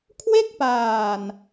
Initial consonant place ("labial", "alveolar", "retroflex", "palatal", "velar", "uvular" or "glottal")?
velar